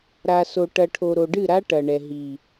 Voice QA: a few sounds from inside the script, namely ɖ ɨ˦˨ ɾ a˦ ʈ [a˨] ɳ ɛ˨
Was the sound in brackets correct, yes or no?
no